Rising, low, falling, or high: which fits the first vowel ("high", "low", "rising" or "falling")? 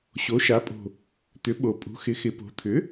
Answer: rising